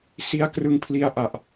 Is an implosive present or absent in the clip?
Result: absent